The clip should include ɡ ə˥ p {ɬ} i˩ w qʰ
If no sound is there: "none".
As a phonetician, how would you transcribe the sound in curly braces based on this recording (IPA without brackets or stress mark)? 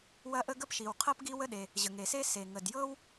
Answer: ʃ